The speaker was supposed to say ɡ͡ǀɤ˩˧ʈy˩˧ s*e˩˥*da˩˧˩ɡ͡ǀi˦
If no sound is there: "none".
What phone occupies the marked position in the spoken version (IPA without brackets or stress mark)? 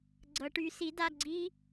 i˩˥